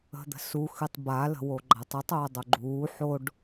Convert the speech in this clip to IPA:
ə̤d̪ə̤su xɨtˤba lə̤woɡ͡ǃatˤutˤ oːdˤoɡ͡ǃuː ħoɖ

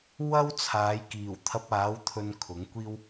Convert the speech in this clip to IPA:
wɐ˥wt͡sʰaː˨˧jkiː˨˩w t̪ʰɐ˧p̚aː˨˥w t̪ʰɵ˧nkʰʊ˨˥ŋkʷiː˥w

